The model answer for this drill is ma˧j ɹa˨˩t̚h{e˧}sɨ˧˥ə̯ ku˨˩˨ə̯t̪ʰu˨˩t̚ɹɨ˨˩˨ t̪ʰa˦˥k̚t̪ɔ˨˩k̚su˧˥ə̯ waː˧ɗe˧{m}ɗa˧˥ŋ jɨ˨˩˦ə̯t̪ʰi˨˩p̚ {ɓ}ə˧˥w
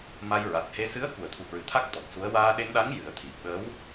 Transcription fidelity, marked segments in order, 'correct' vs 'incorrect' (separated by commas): correct, incorrect, correct